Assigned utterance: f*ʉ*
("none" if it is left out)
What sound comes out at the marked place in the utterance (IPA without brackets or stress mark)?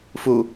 u